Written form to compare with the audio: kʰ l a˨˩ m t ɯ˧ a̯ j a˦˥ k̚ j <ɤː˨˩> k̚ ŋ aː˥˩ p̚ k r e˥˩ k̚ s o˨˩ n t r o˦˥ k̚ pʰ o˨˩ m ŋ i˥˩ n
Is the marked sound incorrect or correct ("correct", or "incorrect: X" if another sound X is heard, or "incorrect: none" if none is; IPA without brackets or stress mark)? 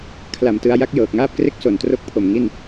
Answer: correct